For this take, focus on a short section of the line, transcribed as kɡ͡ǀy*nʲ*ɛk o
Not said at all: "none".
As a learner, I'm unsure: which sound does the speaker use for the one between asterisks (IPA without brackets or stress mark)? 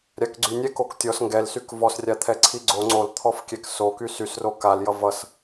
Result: nʲ